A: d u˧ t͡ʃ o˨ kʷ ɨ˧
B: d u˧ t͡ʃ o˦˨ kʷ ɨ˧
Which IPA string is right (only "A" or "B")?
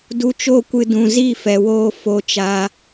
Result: B